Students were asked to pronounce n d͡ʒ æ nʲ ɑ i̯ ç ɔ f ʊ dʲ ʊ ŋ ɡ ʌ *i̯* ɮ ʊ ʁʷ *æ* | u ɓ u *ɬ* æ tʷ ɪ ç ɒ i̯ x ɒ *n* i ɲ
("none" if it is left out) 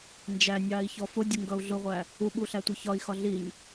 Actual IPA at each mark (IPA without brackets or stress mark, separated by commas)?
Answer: u̯, æ, ɬ, ɮ